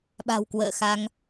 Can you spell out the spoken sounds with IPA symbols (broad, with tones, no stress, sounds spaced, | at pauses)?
ɓ a̤˨˩ w k w ə̰ː˧˨ x a˧ ŋ